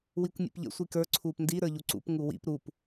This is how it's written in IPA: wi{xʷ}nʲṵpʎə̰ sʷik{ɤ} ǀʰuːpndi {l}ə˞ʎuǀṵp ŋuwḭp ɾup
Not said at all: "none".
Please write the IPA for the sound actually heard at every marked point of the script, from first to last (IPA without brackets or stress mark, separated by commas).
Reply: kʷ, ə˞, ɾ